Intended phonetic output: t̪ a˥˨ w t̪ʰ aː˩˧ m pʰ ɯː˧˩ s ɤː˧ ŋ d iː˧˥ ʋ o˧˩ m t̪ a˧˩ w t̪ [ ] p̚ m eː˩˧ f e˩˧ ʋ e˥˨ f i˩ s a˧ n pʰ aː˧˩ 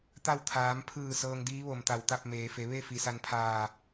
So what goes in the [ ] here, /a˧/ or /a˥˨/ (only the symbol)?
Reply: a˥˨